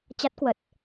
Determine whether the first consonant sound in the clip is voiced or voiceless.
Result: voiceless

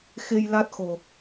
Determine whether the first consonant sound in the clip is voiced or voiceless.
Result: voiceless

